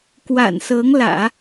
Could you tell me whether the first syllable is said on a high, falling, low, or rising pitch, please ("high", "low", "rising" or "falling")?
low